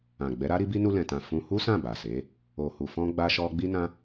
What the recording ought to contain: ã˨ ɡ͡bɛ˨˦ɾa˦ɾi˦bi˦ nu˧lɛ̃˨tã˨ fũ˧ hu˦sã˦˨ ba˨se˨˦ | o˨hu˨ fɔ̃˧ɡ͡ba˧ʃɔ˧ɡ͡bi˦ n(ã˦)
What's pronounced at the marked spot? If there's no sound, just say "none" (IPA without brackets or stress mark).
ã˧